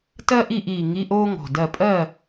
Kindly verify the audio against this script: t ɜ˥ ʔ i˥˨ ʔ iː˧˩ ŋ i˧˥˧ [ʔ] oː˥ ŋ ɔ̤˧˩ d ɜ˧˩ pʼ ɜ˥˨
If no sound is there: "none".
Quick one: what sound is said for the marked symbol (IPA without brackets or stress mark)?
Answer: ʔ